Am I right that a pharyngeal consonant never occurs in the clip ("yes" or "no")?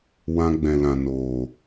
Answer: yes